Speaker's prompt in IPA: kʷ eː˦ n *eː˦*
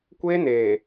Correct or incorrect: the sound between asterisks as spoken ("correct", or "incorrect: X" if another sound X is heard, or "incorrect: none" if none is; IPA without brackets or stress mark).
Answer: incorrect: eː˨